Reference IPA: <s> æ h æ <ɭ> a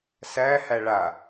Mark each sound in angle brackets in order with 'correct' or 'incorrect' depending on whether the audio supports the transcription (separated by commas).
correct, correct